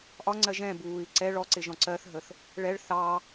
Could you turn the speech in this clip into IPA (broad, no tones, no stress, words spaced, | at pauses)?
ʔɒŋ͡ǀɜ ʒɛ̃ buːi̯ ǀɛ ɭɔǀɪ ʒɔ̃ǀɜθɦəθ | ɭɛɭ θɑ